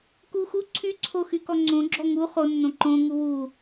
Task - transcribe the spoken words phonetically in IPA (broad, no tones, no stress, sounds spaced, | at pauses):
k u x u ǀʰ y ǀʰ o x y k ɔ ŋ͡ǀ õ ɡ͡ǁ ɔ ŋ u χ o nː õ ǃ õ ŋ u w u